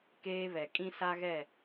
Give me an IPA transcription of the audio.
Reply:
keː˦βɛ˨ kʼĩ˦sa˦ɣɛ˦˨

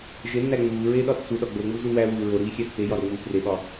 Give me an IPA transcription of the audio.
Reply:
ʒenːæ ŋ͡muːɹeː ɗɒtːuɗɒ ɡ͡boŋ͡mu zuwæwuː ɹoɾiː xʲætːejɒ ɾoŋ͡muːpreɓɒ

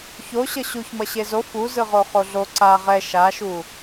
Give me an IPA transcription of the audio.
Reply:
çoɕʌ ɕuç mʌɕezo fuzɯʁo χoɮo ǀa ʁɛ ʃaʃu

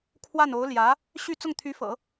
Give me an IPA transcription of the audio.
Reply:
kʰwa˥˩no˧˥ʊ̯ ljä˧˥ | ɕy˥˧ t͡sʊ˥˩ŋt̪ʰy˧˥fɤ̰˨˩˦

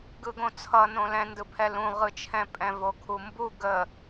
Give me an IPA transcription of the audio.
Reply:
ɡɯɡõt͡sʰʌ nõlɛ̃ndɯpʰɛ lũʁɯt͡ʃʰɛ̃ pʼɛ̃vokʰumbu ɡə

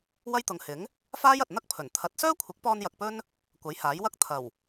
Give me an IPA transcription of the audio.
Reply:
wɐ˥jt̪ʊ˨ŋhɪ˨˥ŋ | faː˥jɐ˨t̚ n̪ɐ˥k̚pʰɵ˨˩nt̪ʰɐ˨˥t̚ sœː˥kʷʰɪ˨˥k̚pɔː˧n jɐ˧k̚pɵ˥n | kʷɐ˨˥jhaː˨˥jwɐ˥k̚ t̪ʰɐ˨˩w

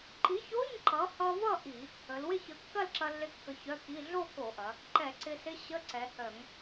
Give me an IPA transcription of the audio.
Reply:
ǃi˨˥ço˧˥˧ɲ ǃʌ˨˥ hʌ˧vʌ˥˧ ʔi˧˩˧ | ə˩˧lwɪ˥˧çə˧ kːɐ˥˧lǁɐ˧lːɪ˧ kːə˧çœ˧˥˧ki˧˥˧ ɮo˥˧ko˧˩˧ʔɐ˩˧ | ǃɛ˧˩˧ǀɪ˧sɪ˧˥˧ ɕə˧˥˧ǀɛ˩˧hœ˧˩˧ŋ

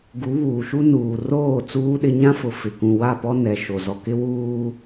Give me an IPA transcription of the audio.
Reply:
ɡu˨˦βuː˨ʃu˦ nuː˨roː˦˨ t͡suː˦ɗɪ˦ ɲã˦fʊ˨ fɪ˨kũ˨ wa˦˨pɔ˦nɛ˨ ʃo˨zɔ˨kɪ˦ wuː˨

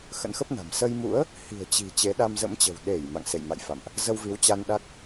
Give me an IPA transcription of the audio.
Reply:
xə̰˧˥nxə˦˥p̚na̤˨˩m sə˧jmṵ˧˥ə̯ | hi̤˨˩ə̯t͡ɕi̤˨˩ t͡ɕe˨˦ɗa˧mzə̰˧˥mt͡ɕə̤˨˩w ɗe˧˩j ma̰˧˨ŋsḛ˧˨jma̰˧˨jfa̰˧˨mʔ | zə˧wvi˨˦wt͡ɕa˧nɗa˦˥k̚

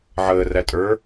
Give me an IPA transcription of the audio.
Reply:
ʕəːræ tʼə˞

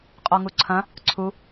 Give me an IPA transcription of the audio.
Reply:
qʼɔŋuǀʰɐ̃ | ǀʰu

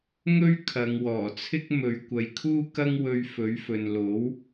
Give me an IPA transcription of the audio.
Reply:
ŋɵ˥ɥ kʰɐ˨˧ŋwɔː˨˩t͡sʰɪ˥k̚ mɵ˨˧ɥ kʷɐ˨jkʰuː˥ kɐ˥ŋwɵ˧ɥfɵ˨˥ɥfɵ˨n lo˨˥w

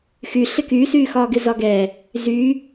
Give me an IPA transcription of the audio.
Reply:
xy ɬɪkysyːxɒː ɡɪzɒɡɛ | zyː

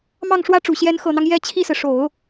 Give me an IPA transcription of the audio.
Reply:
mɑ˥˩ŋʂwä˥ʈ͡ʂu˨˩ ɕjɛ˧˥nxɤ˨˩n̪ɑ˦ŋ jɛ˥˧ t͡ɕʰi˥˩sɹ̩˩ ʂo˨˩˦ʊ̯

